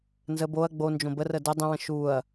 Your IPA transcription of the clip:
n z ə b o ɐ̯ ɡ͡b o n d͡ʒ õ b ə r ə d ə dˤ ə̃ w ə̃ ʃ u ɐ̯

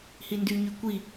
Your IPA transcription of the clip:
h i n d y ɲ y kʷ i

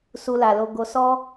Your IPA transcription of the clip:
s u˧ l a˨ l o˧ ɡ o˧ s ɔ˦

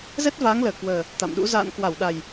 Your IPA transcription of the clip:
z ɛ˦˥ t̚ v aː˨˦ ŋ l əː˧˩ k w əː˨˩ | t̪ a̰˧˨ m ɗ ṵ˧˥ z a̰ː˧˨ n k w a˧˩ w ɗ a˨˩ j

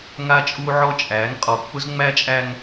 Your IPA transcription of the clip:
ŋ a˦ t͡ʃʼ u˦ ʕ ɔ˦ t͡ʃʼ æ˨˦ ŋ qʼ ɔ˨ k͡p ʊ˦ z ŋ͡m æ˦ t͡ʃʼ æ˦ ŋ

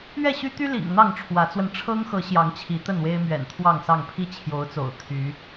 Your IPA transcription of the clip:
ɥ ɛ˥˨ ɕ y˦ t̪ y˦ l ḭ˨˩ ŋ n̪ ɑ˥˨ ŋ ʈ͡ʂʰ w ä˨˦ t͡s w ə˧ n ʈ͡ʂʰ ɤ˦ ŋ x ɤ˨˦ ɕ j ɑ˨˦ ŋ t͡ɕʰ i˨˦ t̪ ə˥˨ n w e˦ ɪ̯ m ɥ ɛ̰˨˩ n t̪ʰ w ɑ˥˨ ŋ s ɑ˥˨ ŋ pʰ i˦ t͡ɕʰ j o˨˦ ʊ̯ t͡s o̰˨˩ ʊ̯ t̪ʰ y˨˦

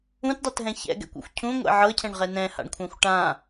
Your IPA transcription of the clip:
ũ t dˤ ɤ t ɦ ɛ̃ ç ɛ̰ ɡ ɛ̰ kʷ ṵ xʷ cʰ ũ ŋʷ ɛ̰ ʕ ɤ cʰ ɛ̃ ɳ ʁ ɛ n ɛ̃ h a̰ ɳ kʷʰ ã xʷ ʈ ã

